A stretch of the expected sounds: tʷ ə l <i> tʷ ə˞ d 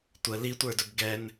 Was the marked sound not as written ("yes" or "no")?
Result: no